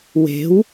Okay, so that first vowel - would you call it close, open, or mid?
mid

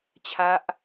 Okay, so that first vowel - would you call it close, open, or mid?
open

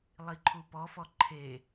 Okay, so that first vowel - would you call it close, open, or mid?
close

